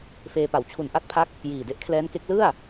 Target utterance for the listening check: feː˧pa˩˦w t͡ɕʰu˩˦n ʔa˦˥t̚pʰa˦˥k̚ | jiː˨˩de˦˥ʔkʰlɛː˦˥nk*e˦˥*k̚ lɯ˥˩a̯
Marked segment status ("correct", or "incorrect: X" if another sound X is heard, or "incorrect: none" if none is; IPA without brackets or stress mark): correct